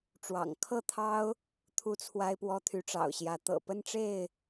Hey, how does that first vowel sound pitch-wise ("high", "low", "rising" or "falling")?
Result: low